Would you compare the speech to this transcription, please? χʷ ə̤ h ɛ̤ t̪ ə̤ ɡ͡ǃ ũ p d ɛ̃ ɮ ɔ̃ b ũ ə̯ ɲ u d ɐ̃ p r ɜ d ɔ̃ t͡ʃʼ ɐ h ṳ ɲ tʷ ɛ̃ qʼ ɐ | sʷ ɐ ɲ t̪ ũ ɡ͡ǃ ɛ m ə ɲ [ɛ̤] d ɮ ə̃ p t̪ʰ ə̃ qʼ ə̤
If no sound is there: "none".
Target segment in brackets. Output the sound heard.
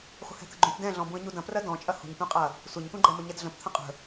ɛ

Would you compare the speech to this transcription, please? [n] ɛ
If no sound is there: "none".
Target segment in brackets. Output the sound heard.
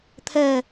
t̪ʰ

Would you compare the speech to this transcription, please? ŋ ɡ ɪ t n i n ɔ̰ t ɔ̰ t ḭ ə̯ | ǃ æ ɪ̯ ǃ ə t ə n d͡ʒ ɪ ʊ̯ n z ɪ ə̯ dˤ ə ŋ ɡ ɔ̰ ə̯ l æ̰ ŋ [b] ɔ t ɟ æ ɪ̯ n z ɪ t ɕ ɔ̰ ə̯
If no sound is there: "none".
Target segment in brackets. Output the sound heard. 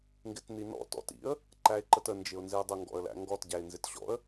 ɡ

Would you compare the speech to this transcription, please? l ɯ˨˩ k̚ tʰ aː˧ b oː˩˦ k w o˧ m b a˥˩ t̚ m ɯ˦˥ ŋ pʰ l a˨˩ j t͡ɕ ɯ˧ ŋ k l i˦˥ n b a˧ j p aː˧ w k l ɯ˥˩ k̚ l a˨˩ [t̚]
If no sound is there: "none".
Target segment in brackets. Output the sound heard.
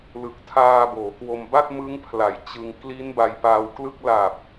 p̚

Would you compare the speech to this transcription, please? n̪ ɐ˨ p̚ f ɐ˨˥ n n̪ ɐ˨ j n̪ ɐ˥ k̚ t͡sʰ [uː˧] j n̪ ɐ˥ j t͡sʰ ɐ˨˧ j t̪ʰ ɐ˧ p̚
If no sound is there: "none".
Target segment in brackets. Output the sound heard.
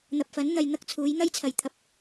uː˨˥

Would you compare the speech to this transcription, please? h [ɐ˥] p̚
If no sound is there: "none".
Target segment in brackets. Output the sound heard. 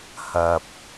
ɐ˧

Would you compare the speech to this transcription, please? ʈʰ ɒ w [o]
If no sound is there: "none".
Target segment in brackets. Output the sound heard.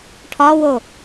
o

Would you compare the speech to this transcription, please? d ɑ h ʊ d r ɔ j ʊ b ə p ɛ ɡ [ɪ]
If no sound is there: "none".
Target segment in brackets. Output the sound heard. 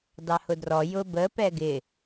ɪ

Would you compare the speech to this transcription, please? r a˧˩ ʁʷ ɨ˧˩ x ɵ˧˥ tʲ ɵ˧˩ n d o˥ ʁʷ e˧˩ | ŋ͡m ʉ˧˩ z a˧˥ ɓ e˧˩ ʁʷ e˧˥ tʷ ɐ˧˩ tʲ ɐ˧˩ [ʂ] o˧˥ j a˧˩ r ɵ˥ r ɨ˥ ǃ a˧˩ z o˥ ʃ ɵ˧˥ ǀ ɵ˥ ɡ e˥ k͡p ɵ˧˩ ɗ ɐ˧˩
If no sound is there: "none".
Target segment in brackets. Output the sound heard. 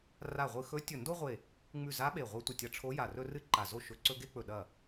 ʈ͡ʂʰ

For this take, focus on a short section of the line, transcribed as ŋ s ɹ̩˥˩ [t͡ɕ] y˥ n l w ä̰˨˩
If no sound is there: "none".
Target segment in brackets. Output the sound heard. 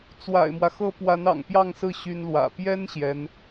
ɕ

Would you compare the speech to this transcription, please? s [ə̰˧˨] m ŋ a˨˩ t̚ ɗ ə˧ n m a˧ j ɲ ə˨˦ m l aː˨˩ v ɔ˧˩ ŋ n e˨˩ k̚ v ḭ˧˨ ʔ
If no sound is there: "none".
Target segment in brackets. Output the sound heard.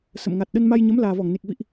ə̰˧˨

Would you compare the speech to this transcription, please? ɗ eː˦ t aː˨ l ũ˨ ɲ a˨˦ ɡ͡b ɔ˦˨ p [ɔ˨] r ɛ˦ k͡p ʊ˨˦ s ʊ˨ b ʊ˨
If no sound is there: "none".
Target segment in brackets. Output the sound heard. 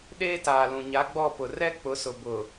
ʊ˨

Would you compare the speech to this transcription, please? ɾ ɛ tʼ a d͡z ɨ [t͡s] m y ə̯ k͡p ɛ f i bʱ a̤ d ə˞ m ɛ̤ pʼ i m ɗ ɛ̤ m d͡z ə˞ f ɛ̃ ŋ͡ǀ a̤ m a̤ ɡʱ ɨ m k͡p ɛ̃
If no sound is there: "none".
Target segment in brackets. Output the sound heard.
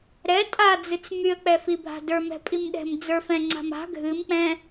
t͡s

